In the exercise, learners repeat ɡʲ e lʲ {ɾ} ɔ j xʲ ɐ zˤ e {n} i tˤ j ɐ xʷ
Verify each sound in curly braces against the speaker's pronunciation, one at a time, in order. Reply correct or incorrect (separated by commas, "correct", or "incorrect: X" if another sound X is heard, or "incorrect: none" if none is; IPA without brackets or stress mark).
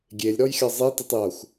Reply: correct, incorrect: t